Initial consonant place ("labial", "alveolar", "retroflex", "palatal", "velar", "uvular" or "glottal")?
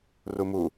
alveolar